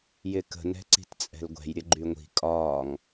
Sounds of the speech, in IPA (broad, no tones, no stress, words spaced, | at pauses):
jɪkə̤ nɛ̤ǀi̤tt͡sʼɛ̤lɡʷɛ̤j ɾʲəɡ͡ǃyŋʷi̤ kʼɒːŋ